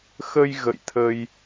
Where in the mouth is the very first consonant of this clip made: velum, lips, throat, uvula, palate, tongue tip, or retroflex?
velum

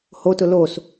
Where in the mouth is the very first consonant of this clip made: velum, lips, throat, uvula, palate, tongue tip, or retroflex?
throat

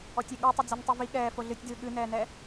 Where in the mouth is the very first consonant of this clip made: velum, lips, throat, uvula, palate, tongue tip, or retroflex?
tongue tip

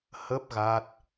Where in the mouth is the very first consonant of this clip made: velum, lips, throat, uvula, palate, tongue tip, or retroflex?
throat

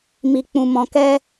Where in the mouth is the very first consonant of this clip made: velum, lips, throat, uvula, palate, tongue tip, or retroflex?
lips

